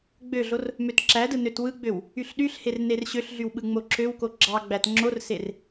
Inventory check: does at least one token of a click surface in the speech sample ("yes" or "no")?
yes